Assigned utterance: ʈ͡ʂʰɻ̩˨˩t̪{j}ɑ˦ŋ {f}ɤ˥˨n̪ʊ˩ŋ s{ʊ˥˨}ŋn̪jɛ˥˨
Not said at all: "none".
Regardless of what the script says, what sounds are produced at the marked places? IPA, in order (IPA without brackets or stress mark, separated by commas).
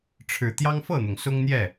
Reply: j, f, ʊ˦